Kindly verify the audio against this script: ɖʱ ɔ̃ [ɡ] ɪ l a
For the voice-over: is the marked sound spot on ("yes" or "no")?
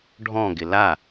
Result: yes